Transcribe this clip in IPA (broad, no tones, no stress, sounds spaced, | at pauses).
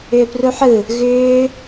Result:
ʏː p r u ħ ɯ | ɣ ʏː